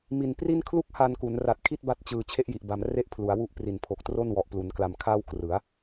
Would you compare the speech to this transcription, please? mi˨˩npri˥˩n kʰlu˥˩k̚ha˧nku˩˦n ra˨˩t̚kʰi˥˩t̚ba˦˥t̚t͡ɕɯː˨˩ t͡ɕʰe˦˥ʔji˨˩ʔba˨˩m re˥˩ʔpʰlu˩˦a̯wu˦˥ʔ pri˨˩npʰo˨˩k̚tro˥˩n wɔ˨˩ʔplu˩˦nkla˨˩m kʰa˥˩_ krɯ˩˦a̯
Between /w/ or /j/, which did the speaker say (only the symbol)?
w